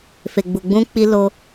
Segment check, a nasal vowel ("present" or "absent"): present